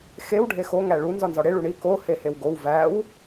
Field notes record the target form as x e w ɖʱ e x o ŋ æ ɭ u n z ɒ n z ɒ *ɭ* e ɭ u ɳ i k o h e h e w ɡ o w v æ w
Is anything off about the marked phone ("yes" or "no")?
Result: yes